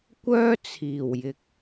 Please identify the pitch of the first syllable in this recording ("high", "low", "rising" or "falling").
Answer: high